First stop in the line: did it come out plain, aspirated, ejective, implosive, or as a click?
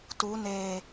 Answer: plain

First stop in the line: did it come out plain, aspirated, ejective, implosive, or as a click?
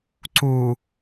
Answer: click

